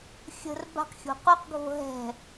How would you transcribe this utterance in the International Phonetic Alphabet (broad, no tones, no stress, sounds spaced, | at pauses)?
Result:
xʲ ə̤ r b a̤ q xʲ o̤ q u q ɡʱ o̤ ɦ ɛ̤